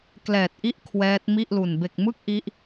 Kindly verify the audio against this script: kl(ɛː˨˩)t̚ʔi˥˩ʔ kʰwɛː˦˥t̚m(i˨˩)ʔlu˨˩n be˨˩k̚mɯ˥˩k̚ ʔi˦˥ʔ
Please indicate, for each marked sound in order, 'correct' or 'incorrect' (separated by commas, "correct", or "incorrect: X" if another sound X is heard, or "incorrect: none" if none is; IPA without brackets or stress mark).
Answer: correct, incorrect: i˥˩